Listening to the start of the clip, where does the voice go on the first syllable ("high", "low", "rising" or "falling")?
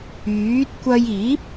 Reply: rising